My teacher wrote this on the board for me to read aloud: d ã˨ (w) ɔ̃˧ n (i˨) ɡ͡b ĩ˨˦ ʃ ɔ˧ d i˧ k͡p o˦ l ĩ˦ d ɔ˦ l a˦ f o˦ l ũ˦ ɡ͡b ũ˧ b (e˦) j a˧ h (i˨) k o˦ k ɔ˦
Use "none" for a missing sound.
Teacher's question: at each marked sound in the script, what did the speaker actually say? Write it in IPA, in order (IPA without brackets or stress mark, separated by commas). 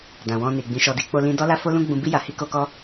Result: w, i˨, i˦, i˦